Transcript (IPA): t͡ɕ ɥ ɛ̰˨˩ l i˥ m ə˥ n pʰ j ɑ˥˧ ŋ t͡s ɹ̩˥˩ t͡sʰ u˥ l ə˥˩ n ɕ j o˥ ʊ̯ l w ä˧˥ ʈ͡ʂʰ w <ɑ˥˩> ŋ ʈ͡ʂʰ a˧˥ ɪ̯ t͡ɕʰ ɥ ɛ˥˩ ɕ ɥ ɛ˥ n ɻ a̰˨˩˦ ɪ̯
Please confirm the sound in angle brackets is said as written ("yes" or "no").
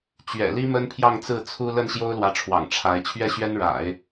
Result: no